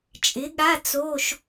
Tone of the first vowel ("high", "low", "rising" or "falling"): rising